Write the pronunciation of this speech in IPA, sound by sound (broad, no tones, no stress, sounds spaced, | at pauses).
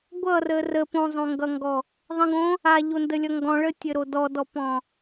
ɡʷ ʌ r ə r ə p õ zˤ õ ŋ ɡ ʌ ŋ ɡ ɔ | ðˤ ə̃ ɡ õ | a ʎ o n d ə lʲ ʌ ŋ ɡ ɔ̃ ɭ ə tʲ ɘ ɾ o d ɔ d ɔ p ɔ̃